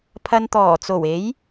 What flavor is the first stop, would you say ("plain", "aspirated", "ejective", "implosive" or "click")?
aspirated